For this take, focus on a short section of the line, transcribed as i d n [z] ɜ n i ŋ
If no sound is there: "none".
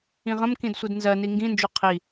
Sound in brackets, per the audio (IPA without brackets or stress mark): z